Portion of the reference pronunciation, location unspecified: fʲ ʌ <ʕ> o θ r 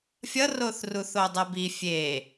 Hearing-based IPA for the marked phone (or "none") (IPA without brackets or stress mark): r